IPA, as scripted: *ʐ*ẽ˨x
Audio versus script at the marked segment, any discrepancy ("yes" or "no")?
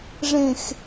no